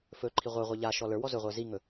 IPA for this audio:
f ɵ ǃʰ i ʁʷ ə˞ ʁʷ ɛ ʎ a ʃ ɔ l ə˞ w ɔ z ɵ ʁʷ ə˞ z i ŋ ɵ

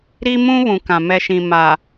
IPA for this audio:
ɾ i˦ m ũ˦ β ũ˨ k ã˨ m ɛ˨ ʃ ĩ˨ m a˨

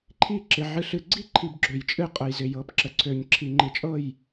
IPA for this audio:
ǃʰ i˥˧ ǁ ɪ˧ ʕ ɨ˧ ɬ ɨ˧ ɡ͡ǀ i˥˧ ǃʰ i˧ b ɡ͡ǁ ø˧ j t͡ʃʼ ɨ˥˧ qʼ ə˧ j z ɪ˧ j ɤ˧ p ǁ ə˧ ǀʰ ø˧ ɲ ǁʰ i˧ ŋ͡ǃ ɨ˧ t͡ʃʼ ɤ˥˧ j

